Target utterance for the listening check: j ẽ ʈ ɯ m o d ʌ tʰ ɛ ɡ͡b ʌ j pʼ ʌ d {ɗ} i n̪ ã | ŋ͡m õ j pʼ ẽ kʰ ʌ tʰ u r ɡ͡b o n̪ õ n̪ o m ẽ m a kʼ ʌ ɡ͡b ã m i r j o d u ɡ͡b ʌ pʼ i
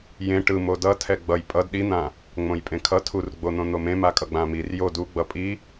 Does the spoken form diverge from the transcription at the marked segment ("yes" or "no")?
no